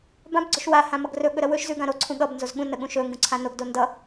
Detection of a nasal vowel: present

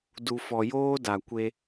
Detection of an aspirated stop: absent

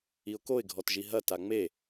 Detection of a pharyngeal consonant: absent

